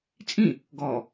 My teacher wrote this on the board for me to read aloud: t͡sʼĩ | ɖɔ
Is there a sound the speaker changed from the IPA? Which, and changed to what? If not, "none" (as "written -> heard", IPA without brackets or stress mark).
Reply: ɖ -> ɡ